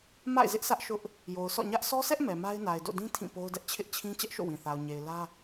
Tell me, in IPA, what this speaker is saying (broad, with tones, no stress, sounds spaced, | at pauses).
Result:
m a̰˦˨ ɪ̯ z ɪ˦ ʔ sʰ ä˦ ʔ ʃ ʊ˦ ʔ | j o˨ ʊ̯ s ɔ̰˦˨ ɲ ä˦ ʔ s ɔ˦ s ɛ˦ ʔ m ɛ˨ m a˦ ɪ̯ n a˨ ɪ̯ d o̰˦˨ d ĩ˦ tʰ ĩ˦˨ p o˦ ʊ̯ d ɛ˦ ʔ t͡ɕʰ ɪ˦ ʔ t͡ɕʰ ĩ˦ t͡ɕ ɛ˦ ʔ ʃ o̰˦˨ w ĩ˨ θ a˨ ʊ̯ ɲ e˨ ɪ̯ l ä˦